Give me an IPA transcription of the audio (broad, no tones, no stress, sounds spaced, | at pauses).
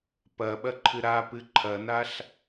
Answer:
p ɐ ɓ ɐ ǃʰ ɨ ɾ a p ɨ ǃʰ ɐ n a ɬ